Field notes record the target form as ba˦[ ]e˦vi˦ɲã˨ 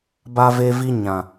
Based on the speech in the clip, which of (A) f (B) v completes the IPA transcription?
B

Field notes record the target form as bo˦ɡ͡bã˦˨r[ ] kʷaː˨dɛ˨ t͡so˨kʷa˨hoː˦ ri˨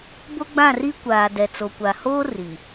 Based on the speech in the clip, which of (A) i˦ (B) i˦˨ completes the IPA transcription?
A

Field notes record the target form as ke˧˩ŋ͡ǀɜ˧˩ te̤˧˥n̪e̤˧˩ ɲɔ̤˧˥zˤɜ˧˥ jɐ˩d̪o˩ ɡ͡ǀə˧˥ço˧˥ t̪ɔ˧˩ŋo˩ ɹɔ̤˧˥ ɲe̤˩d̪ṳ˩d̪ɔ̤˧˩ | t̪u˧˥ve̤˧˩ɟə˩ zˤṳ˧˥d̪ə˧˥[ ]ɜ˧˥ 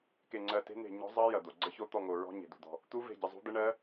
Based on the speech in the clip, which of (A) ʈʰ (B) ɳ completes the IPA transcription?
B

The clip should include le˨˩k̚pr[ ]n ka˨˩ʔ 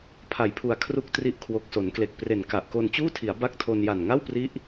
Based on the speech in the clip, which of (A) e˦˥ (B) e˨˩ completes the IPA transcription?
B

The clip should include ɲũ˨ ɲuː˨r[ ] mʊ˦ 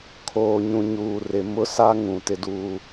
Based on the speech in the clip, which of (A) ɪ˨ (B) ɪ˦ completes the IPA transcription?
A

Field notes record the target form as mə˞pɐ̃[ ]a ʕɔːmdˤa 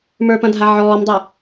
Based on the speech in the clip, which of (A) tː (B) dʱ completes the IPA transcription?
B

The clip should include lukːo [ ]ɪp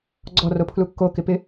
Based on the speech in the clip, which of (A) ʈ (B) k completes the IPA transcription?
B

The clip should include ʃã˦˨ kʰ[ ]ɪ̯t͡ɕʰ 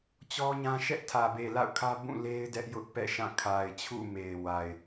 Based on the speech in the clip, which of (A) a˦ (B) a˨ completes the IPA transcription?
B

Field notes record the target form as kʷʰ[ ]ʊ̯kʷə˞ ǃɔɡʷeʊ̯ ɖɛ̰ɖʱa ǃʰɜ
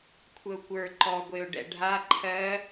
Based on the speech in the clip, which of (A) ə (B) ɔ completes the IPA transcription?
A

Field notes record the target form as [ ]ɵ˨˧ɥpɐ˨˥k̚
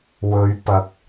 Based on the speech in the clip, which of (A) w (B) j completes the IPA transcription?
A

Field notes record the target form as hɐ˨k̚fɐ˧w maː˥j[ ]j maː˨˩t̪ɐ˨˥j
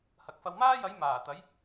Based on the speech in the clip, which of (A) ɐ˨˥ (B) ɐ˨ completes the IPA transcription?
A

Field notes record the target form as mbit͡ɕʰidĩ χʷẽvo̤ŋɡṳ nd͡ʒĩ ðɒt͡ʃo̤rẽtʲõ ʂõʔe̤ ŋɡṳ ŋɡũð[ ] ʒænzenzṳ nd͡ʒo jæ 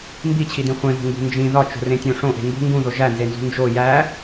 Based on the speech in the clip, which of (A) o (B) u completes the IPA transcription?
A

